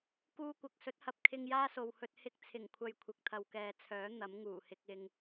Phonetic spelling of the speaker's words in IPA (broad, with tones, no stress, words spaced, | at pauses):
kuː˧kʷɐ˨k̚sɵ˨˥t̚hɐ˨p̚ kʰɪ˧ŋjaː˥so˨whɵ˧t̚ hɪ˧k̚t͡sʰɪ˨˩ŋkʷʰɐ˨j kʷʰɪ˨k̚t̪ʰɐ˨wkɛː˨t͡sʰœː˨˥ n̪ɐ˨˥mŋuː˨˩hɪ˧k̚ ɪ˨ŋ